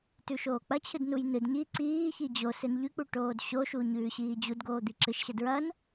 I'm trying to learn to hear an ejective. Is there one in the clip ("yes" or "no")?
no